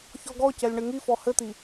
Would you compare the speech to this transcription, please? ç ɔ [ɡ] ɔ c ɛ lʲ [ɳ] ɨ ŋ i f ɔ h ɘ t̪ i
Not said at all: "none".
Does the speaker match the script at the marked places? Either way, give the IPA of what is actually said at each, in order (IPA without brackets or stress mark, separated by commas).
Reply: ɡ, ɳ